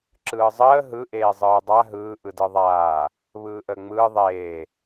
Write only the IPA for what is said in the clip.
ǁ ɯː zˤ əː ɦ ɯ ʔ eː zˤ ɯː dˤ a ɦ ɯː ʔ ɯ d ɯ ðˤ aː | β ɯː ʔ əː ŋ͡m ɯː ðˤ eː

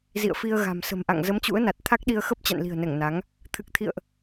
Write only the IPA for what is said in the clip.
z ḭ˧˨ ə̯ f i˧ ə̯ ɣ a̤˨˩ m s ə̤˨˩ m ʔ a̰˧˨ ŋ z ə˨˦ m t͡ɕ ṵ˧˥ ə̯ n a˨˩ t̚ t̪ʰ a˦˥ k̚ ɗ i˧ ə̯ x ə˦˥ p̚ t͡ɕ a̰˧˨ n l i̤˨˩ ə̯ n ɛ˧˩ ŋ n a˨˦ ŋ | t̪ʰ ɨ˨˩ k̚ t̪ʰ ḭ˧˨ ə̯ ʔ

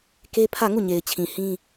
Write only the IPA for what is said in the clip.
k e˦ pʰ ä˦˨ ŋ u˦˨ ɲ e˨ ɪ̯ t͡ɕʰ ĩ˨ h ĩ˦

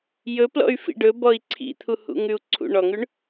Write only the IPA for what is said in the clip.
j ɵ p l ɔ̰ y̯ f ḭ ɖ ɵ b ɔ i̯ ǀʰ ḭ t̪ʰ u h ṵ ŋ ʉ u̯ ǀʰ ṵ ɳ ɔ ŋ ʉ ɳ

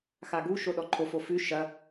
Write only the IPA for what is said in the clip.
x a ɡ u ʃ o ɗ ɔ ǃʰ o f o f ʉ ʃ ɐ

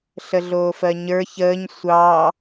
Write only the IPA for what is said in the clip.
ɬ ə ɮ oː f ɜ ɲ ə˞ ç əː ɲ sʷ ɑ

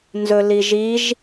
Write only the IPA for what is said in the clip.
n z ɵ l i ʒ i ʒ

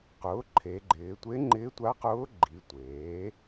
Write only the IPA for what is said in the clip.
q ʊː˩˥ ǃʰ e˩˧ ɡ͡ǃ ɪː˩˧ tʷ e˧˥ ŋ͡ǃ ɪː˧˥ tʷ a˧˥ q ʊː˧˥ ɡ͡ǃ i˩˧ tʷ eː˩˥

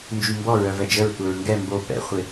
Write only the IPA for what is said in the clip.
n d͡ʒ y m b ɔ ɹ œ v ɛ d͡ʒ ə ɹ tʷ ə ɹ ŋ ɡ ɛ m b o p ɛ̰ χʷ ɪ

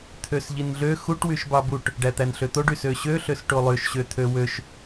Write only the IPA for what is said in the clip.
t̪ʰ ø s ʎ i n ɮ ø x u ʈ w y ʃ b ɑ b u ʈ | ɖ æ t̪ æ n ɬ ø t̪ o ɖ y s ø ɕ ø ɬ ø s ʈ o lˠ ø ʃ ɕ ø t̪ʰ ø w ø ʃ

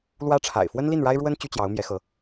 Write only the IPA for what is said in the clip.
l w ä˥ ʈ͡ʂʰ a̰˨˩ ɪ̯ f w ə˥ n l i˥˩ n ɻ a˥ ɪ̯ ɻ w ə˥ n t͡ɕ y˥ t͡ɕ j ɑ˧˥ ʊ̯ m j ɛ˧˥ x ɤ˧˥

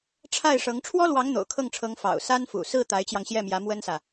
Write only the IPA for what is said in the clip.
ʈ͡ʂʰ a˥˩ ɪ̯ ʂ ɤ˧˥ ŋ ʈ͡ʂʰ w ɔ˥ l w ɑ˧˥ ŋ n̪ o̰˨˩ ʊ̯ kʰ ɤ˥˩ ŋ ʈ͡ʂʰ ɤ˧˥ ŋ f ɑ̰˨˩ ʊ̯ s a˥ n f ṵ˨˩ s ɹ̩˥˩ t̪ a˧˥ ɪ̯ t͡ɕ j ɑ˧ ŋ ɕ j ɛ˥˩ m j ä˧˥ m w ə˥ n s ä˨

